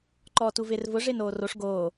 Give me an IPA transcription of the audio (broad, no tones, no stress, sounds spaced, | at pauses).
ǃ ɔː t u v ɪː r v ʊ ʐ ɪː n oː r o ʂ ɡ oː